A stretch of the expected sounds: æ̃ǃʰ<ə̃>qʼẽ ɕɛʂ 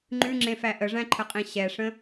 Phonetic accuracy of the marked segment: incorrect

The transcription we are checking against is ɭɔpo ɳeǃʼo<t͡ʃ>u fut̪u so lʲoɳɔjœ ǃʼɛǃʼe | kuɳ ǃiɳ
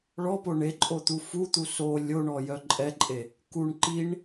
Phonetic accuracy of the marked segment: incorrect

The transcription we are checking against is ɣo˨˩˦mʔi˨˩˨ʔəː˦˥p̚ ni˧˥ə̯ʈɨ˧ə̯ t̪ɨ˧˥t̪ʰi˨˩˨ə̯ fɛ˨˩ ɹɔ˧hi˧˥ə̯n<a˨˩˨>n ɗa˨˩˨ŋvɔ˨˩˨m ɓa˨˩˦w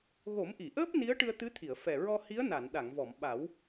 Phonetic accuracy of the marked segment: correct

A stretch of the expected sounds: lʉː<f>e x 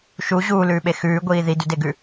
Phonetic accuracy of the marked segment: incorrect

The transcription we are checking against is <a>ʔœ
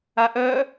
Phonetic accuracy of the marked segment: correct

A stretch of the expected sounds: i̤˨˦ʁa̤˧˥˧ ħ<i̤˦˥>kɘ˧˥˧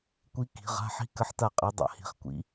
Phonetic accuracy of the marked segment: correct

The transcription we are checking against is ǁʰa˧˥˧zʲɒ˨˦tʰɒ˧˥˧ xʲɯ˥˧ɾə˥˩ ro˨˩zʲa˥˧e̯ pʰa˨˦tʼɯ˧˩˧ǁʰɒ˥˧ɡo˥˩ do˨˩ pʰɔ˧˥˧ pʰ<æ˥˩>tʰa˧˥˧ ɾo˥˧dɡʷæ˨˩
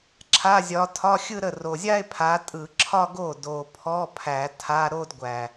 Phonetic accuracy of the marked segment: incorrect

